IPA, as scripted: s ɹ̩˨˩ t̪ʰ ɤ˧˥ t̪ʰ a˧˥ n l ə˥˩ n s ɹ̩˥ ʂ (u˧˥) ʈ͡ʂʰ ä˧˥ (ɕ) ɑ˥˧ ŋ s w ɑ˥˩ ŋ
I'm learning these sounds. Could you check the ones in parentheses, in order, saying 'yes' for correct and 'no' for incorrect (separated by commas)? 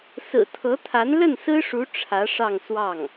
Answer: yes, no